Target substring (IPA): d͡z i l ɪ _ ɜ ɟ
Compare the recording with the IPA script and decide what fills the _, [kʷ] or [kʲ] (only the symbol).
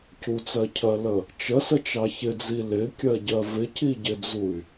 kʲ